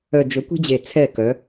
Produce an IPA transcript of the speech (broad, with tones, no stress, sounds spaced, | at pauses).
œ˨ d͡ʒ ɵ˨˦ kʷ e̤˦ d͡ʑ e˨ t͡sʰ ɛ˦˨ k œ˨˦